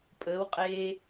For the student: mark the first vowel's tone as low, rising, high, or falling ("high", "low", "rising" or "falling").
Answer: rising